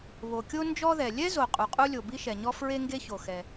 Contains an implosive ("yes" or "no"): no